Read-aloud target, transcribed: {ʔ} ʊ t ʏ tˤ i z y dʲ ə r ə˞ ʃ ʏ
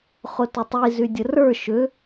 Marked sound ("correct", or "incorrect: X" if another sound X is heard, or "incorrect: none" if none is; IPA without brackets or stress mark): incorrect: χ